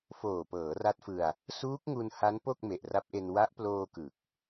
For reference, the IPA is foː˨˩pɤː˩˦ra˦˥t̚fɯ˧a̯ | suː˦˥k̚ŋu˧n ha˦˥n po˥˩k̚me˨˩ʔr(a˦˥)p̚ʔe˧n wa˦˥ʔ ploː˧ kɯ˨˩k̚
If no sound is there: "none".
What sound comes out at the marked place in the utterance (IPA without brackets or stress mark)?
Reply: a˦˥